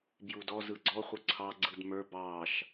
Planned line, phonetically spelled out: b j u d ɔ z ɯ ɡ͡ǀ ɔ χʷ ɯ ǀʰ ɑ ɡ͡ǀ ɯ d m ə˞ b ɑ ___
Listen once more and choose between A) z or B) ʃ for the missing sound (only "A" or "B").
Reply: B